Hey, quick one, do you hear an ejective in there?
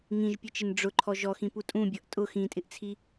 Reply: yes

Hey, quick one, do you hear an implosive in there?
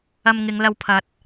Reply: no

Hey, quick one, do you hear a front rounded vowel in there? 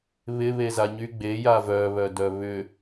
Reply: yes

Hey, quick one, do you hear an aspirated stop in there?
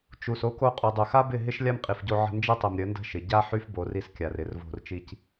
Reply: no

